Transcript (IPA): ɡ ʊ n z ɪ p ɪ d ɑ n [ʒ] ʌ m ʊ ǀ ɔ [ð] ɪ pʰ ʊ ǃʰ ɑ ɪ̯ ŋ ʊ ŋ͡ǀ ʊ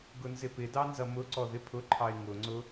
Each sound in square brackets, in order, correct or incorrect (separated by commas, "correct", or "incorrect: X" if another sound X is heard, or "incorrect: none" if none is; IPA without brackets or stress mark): incorrect: z, correct